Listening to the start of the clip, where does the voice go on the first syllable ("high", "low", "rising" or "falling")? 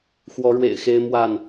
rising